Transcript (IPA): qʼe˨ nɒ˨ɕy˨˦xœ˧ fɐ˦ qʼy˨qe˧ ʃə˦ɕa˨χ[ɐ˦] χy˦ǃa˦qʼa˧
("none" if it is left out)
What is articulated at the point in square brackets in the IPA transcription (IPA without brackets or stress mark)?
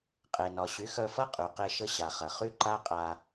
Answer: ɐ˨